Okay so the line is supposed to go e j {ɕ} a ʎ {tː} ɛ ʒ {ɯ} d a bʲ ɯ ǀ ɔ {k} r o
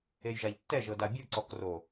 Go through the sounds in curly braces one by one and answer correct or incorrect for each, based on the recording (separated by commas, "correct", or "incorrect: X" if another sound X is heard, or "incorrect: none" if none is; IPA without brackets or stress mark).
incorrect: ʒ, correct, incorrect: ɤ, correct